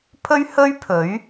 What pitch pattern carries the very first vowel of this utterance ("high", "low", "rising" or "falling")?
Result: high